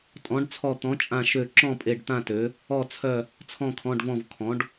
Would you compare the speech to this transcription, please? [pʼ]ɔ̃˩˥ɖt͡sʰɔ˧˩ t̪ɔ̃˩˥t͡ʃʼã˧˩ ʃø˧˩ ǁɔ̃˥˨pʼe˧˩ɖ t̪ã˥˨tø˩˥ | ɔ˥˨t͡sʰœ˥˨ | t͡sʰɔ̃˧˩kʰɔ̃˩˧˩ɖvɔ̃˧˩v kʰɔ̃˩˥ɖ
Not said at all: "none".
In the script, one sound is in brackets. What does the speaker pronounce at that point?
tʼ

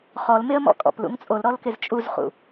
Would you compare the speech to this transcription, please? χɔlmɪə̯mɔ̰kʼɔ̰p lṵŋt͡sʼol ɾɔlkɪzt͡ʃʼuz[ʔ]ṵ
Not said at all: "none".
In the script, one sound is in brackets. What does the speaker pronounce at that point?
χ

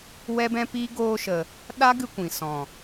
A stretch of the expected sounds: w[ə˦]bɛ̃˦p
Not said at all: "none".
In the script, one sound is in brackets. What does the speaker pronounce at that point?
ɛ˦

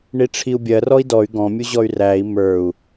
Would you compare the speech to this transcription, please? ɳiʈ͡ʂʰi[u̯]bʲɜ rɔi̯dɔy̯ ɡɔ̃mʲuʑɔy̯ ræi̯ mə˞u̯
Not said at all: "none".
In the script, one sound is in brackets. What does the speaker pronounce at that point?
u̯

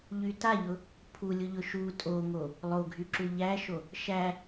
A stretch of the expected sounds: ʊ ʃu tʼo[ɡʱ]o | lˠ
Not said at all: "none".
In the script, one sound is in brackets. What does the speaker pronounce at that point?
ŋ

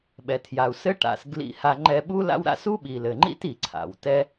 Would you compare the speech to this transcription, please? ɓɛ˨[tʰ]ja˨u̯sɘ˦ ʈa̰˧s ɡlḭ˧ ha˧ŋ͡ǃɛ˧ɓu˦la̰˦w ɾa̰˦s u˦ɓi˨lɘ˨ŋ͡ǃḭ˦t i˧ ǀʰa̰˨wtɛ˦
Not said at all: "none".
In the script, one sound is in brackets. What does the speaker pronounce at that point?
tʰ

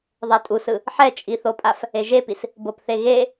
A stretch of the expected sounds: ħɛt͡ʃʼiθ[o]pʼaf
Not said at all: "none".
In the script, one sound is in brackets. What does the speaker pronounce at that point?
o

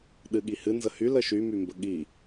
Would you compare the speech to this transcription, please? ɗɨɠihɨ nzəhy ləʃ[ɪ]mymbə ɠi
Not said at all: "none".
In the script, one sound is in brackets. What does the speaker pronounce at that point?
y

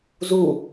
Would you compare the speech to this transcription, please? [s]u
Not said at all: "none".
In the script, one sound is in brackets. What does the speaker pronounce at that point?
z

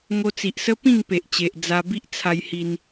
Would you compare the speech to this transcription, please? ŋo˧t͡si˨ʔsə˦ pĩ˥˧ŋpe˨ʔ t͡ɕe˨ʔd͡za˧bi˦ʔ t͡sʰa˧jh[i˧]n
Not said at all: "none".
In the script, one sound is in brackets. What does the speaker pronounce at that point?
i˧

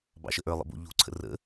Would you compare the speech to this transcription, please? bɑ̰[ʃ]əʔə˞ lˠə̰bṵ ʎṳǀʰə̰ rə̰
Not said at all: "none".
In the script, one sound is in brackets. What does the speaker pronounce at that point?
ʃ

